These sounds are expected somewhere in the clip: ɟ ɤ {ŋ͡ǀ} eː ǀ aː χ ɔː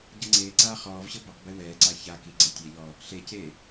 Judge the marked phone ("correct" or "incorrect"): correct